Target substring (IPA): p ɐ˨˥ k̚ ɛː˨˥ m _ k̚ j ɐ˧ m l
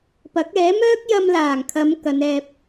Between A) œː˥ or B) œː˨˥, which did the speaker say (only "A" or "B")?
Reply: A